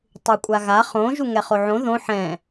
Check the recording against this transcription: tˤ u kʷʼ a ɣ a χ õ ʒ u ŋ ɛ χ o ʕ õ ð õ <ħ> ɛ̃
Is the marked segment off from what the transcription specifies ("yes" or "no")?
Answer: no